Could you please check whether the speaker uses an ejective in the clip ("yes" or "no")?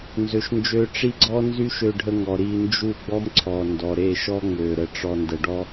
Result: no